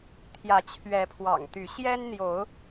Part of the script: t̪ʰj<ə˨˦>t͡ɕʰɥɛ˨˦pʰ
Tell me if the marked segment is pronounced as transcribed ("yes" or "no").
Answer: no